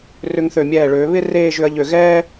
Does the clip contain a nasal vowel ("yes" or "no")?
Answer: no